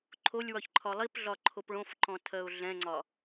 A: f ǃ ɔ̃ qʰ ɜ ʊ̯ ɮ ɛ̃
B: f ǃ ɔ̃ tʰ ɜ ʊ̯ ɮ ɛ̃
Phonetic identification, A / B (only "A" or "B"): B